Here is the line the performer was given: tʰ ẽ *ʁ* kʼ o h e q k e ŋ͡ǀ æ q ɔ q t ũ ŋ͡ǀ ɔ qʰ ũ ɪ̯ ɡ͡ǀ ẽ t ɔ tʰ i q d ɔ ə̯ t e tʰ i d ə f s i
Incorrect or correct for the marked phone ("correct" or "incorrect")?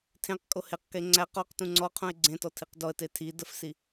incorrect